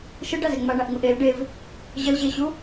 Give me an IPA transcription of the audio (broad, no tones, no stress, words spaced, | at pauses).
ʃɯɖazɛ ŋ͡maɳaʔŋuʔ el ɖev | ʑəlʑeɕu